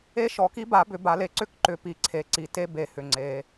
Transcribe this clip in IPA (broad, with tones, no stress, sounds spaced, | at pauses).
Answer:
e˧˥ ʃ ɔ˨˩˦ k i˧˥ b a˨˩˦ b ʏ˨˩˦ b a˨˩˦ l e˨˩ ǀ ʏ˧˥ k ǃ ʏ˨˩ p i˨˩˦ ǀʰ e˨˩ ǀ i˨˩ t e˧˥ b e˨˩˦ h ʏ˨˩ ŋ͡ǀ e˨˩˦